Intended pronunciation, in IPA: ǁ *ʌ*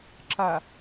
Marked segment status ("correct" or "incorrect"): incorrect